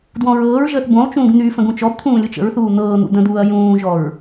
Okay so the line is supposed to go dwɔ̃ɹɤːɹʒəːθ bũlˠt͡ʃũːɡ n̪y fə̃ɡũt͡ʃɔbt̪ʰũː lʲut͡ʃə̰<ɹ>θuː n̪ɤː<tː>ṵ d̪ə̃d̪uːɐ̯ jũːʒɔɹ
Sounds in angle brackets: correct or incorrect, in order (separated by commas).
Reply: correct, incorrect